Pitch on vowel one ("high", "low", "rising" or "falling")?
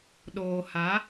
low